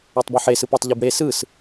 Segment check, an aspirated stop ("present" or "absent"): absent